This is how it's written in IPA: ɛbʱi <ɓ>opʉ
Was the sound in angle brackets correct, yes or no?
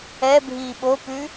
yes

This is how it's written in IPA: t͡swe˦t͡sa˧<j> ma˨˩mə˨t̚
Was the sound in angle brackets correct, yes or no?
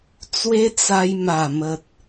yes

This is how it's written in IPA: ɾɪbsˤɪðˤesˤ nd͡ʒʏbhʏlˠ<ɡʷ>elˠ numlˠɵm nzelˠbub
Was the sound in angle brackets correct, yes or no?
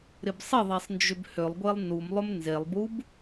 yes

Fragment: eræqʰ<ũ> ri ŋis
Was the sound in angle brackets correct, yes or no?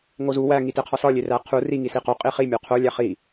no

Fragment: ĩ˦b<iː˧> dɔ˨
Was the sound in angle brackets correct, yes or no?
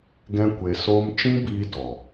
yes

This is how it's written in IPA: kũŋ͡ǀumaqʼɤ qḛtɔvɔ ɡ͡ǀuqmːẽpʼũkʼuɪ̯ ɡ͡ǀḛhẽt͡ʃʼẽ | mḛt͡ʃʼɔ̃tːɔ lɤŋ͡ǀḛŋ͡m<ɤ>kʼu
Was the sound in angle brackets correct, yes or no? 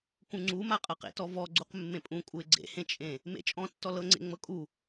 yes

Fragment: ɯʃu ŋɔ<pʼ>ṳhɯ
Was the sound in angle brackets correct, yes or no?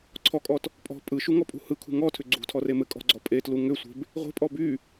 yes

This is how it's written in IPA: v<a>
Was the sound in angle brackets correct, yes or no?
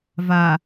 yes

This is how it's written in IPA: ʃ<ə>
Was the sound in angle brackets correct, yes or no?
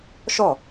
no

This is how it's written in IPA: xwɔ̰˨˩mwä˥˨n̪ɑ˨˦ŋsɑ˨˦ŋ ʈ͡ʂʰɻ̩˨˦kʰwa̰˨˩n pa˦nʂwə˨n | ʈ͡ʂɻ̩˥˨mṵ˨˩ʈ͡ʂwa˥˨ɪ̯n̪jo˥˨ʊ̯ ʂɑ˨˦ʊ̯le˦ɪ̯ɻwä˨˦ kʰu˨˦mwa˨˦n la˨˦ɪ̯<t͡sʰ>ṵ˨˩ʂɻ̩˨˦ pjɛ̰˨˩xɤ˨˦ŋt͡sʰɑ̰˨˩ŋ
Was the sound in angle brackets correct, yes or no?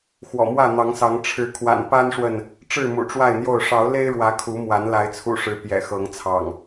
yes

